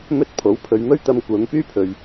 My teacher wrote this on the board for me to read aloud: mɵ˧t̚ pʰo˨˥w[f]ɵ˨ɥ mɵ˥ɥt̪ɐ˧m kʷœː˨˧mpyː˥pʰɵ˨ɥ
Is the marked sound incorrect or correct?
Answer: incorrect